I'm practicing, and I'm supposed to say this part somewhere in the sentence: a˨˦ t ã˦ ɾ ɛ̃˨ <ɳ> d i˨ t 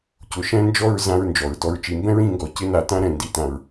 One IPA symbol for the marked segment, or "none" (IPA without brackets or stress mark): n